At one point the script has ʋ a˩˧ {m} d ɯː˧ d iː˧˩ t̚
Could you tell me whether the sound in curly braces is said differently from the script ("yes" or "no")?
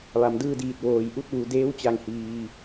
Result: no